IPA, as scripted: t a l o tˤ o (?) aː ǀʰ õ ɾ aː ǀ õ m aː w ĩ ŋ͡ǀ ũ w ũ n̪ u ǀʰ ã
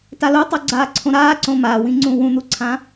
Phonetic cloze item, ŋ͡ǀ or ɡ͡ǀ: ɡ͡ǀ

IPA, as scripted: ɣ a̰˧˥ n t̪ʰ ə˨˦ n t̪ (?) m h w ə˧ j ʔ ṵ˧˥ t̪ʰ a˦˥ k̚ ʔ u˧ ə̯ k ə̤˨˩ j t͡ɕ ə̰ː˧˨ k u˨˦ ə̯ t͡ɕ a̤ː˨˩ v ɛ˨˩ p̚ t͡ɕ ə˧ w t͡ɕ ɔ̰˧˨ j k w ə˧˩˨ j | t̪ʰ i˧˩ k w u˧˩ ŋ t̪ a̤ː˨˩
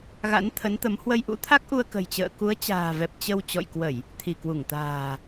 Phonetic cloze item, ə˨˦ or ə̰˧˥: ə˨˦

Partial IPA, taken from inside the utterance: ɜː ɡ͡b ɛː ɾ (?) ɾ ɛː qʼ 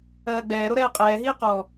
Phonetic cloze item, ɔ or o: o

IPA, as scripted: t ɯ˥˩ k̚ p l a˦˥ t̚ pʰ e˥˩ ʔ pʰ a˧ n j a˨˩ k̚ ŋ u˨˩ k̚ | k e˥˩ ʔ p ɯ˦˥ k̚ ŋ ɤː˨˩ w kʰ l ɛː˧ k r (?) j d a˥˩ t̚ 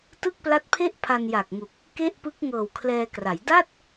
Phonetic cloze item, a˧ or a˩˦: a˩˦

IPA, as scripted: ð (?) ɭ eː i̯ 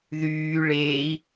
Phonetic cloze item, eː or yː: yː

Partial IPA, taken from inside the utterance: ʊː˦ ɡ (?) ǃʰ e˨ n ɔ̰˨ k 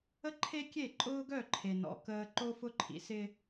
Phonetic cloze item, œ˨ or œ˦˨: œ˦˨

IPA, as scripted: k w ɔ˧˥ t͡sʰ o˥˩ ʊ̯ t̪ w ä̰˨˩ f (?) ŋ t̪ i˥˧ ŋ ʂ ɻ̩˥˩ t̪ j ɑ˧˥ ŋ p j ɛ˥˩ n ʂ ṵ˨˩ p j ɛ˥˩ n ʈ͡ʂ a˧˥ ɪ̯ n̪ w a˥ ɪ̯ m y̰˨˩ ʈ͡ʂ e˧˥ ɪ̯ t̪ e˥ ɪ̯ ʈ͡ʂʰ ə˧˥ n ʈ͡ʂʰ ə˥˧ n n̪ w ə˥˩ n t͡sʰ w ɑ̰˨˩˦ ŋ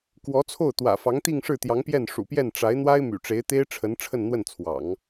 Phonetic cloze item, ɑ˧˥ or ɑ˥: ɑ˧˥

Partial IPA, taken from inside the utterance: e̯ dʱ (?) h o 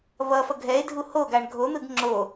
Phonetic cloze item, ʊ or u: u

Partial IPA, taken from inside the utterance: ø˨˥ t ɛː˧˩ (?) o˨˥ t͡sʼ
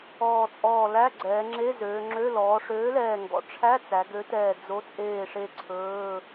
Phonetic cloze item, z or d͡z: d͡z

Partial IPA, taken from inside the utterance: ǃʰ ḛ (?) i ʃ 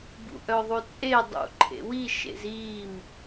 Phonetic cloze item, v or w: w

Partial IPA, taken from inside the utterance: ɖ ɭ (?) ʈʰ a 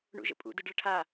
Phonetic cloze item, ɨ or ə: ə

